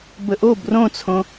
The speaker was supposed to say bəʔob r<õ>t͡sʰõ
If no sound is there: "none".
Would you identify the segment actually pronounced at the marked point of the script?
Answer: õ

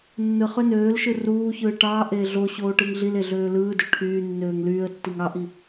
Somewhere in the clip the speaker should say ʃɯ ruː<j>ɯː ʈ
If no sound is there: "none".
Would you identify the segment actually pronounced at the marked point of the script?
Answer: ç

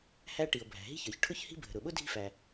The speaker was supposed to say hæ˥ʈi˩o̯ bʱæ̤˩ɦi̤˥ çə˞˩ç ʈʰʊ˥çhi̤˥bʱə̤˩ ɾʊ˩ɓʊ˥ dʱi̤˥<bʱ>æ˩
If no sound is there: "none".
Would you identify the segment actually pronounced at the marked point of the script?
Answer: f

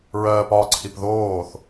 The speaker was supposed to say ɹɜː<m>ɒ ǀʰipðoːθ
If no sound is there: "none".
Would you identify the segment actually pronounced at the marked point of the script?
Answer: p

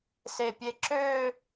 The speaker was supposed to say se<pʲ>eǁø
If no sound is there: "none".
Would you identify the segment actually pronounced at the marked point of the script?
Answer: pʲ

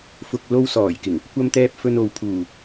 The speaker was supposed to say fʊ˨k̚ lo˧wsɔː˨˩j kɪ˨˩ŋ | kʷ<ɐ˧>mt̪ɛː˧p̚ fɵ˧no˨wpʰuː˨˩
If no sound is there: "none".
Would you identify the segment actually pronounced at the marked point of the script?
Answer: ɐ˧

